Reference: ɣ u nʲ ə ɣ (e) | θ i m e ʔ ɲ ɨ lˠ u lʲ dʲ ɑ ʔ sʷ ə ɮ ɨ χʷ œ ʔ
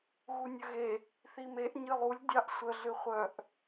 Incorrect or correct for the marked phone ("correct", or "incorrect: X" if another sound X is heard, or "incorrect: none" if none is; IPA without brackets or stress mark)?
correct